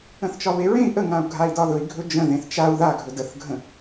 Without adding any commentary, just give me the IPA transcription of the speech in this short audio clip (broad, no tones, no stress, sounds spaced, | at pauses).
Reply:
ə̃ θ t͡ʃ ɒ β e ɹ ẽ i̯ ʔ ə ŋ ã u̯ ɡʱ a i̯ d ɒ ð ɵ i̯ ɡʱ ɵ d͡ʒ ə̃ ð ẽ θ t͡ʃ a u̯ ð a ɡʱ ɵ d ə θ ɡʱ ə̃